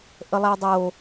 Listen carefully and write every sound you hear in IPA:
ʔ ə lˠ æ dˤ o

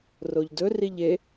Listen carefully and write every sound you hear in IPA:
r o ʎ d ɵ r i ʎ e

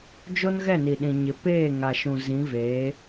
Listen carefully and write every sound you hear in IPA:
d͡ʒ o˦ n ɣ ɛ˦˨ n i˨ ɗ ĩ˨ ɲ ɪ˨ p eː˦˨ ŋ a˨ ʃ ũ˨ z ĩ˨˦ v eː˨˦

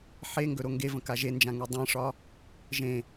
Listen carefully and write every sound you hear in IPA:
ħ e ŋ ɡ ɵ ɾ o ŋ ɡ e v ə̃ k a ʒ e n d͡ʒ ã ŋ e dˤ ẽ ʂ ɒ | ʒ ẽ

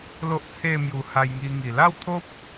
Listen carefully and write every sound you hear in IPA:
l o˦ ʔ t͡sʰ e˥˧ m j u˧ h a˧ j ŋ i˧ ŋ i˨˩ l a˥˧ w t̪ʰ o˦ p̚

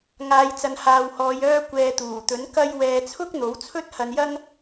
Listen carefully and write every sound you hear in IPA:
ŋ aː˨˧ j t͡s ɐ˨ n h aː˨ w h ɔː˨˧ j œː˧ kʷ ɛː˨ t̪ uː˨˩ t̪ ɵ˨˥ n k ɐ˥ j w ɛː˧ t͡sʰ ʊ˥ k̚ n̪ o˨˥ w t͡sʰ ɵ˥ t̚ h ɐ˧ n j ɐ˥ ŋ

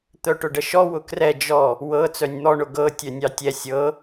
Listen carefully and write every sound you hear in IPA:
t̪ œ ʈ ʊ ɖ ə ʃ ɔ w ʊ k r ɛ d͡ʒ ɔ | w ɤ t͡s œ nʲ n̪ ɔ ɳ ʊ ɡ ɤ tʲ œ nʲ ɑ tʲ ɛ sʲ ɤ

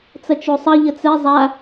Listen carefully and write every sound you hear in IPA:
t͡s ɐ t͡ʃ o sˤ ɐ ʎ ə t͡s ɛ zˤ a

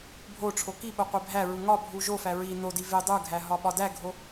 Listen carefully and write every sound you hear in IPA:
bʱ o ʈ͡ʂʰ o k i ɓ o qʷ e bʱ æ ɹ u ŋ ɒ bʱ u ʒ o f æ ɹ i n o d i v e dˤ u ɡʱ æ ɦ ɒ ɓ ɒ d æ ɡʱ o

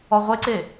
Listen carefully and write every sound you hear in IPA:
ɔ ʁʷ e ǀ e

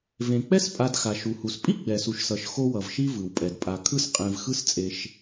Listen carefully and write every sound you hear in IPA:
v ẽ˩ k͡p ɛ˥ s pʼ a˨ d x a˩ ʃ u˩ h u˩ s pʼ i˥ ɡ͡b ɛ˩ s u˩ ʃ s ʌ˩ ʃ x o˦ w ʌ˩ v ʃ i˥ v ɯ˩ w pʼ ɛ˩ d pʼ a˨ kʰ ɯ˥ s qʼ ẽ˨ v x ɯ˦ s t͡sʼ e˨ ʃ

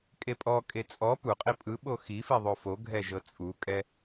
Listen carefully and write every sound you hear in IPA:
kʼ e pʼ ɔ kʼ e t͡sʼ ɔ p u qʼ i pʼ ɯ ɓ o x i f i ðˤ o f o ɡʱ ɛ ʒ ɤ t͡sʼ u kʼ ɛ

